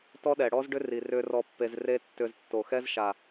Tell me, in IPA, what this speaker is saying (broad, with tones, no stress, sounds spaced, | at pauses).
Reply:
t ɔ˦ ɗ ɛ˨ ɽ ɔ˦ z ɖ ʏ˦ r i˨ r ʏ˧ r ɔ˧ pː e˧ z r e˦ tː ʏ˧ z tː o˨ x ɛ˦ z ʃ a˨